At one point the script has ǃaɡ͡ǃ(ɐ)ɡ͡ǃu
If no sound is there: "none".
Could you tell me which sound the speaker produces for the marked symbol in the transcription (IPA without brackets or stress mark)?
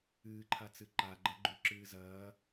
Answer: ɐ